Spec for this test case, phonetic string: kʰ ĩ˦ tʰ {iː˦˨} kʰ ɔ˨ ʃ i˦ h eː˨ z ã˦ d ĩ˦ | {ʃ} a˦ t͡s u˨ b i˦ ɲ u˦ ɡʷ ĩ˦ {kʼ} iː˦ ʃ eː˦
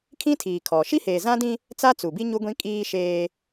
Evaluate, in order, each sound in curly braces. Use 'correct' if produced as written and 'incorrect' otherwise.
incorrect: iː˨, incorrect: t͡s, correct

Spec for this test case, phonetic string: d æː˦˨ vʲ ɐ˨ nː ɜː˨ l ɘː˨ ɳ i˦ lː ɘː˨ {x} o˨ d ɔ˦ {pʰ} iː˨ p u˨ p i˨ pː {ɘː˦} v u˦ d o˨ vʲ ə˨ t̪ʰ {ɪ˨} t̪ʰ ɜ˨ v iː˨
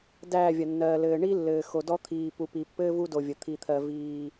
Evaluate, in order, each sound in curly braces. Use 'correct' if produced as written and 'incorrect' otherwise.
correct, incorrect: t̪ʰ, correct, incorrect: i˨

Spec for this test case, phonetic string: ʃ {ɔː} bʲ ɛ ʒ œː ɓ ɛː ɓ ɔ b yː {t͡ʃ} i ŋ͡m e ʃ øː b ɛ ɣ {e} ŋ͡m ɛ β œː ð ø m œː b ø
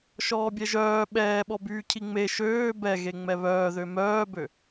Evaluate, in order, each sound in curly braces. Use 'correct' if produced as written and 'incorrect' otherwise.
correct, incorrect: cʰ, correct

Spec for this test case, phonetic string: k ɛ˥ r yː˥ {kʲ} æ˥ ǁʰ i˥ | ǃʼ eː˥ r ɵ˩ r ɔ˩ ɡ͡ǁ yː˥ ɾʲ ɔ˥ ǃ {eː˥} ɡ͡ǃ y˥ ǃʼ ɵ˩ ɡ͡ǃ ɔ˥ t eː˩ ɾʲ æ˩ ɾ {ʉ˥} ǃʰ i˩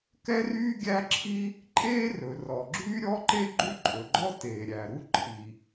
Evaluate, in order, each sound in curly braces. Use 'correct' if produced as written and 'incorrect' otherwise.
incorrect: ɡʲ, incorrect: e˥, incorrect: u˥

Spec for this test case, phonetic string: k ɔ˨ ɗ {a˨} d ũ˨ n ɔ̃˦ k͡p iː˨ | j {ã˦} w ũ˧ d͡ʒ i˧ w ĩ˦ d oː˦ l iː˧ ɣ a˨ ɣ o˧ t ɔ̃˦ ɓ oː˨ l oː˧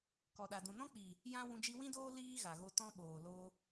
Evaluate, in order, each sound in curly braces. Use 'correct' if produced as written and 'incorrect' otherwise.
correct, correct

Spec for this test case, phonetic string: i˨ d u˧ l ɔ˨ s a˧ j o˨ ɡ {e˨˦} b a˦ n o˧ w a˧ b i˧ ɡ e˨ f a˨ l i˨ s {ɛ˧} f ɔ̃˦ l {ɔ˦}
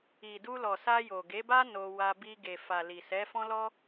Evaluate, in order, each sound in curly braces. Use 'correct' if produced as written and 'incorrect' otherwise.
correct, incorrect: ɛ˨˦, correct

